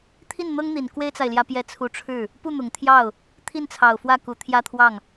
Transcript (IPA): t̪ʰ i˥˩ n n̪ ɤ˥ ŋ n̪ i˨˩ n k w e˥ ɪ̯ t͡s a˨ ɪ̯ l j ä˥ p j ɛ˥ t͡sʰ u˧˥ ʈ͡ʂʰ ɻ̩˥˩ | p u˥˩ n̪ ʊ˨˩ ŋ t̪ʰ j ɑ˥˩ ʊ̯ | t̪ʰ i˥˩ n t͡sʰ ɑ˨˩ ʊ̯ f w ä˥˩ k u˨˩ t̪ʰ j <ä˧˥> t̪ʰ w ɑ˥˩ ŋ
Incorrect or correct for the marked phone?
incorrect: ä˥˧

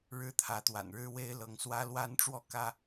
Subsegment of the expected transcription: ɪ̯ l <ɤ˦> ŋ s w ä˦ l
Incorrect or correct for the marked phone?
incorrect: ɤ˨˦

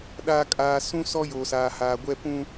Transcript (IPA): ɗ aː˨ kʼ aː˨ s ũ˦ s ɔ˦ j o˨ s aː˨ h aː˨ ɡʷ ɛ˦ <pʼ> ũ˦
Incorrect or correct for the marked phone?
incorrect: p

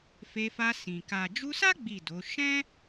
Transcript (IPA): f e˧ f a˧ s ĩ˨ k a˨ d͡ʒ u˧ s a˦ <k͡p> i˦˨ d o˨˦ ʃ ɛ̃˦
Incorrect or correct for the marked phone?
incorrect: ɡ͡b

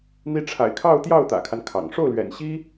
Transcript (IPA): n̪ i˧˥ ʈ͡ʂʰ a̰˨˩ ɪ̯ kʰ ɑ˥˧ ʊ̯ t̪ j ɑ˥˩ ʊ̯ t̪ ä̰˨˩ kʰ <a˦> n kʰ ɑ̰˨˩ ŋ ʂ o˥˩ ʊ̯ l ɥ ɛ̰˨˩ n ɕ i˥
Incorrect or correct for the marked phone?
correct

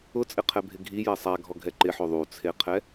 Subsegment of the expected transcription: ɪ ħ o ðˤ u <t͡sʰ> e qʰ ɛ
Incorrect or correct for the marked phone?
correct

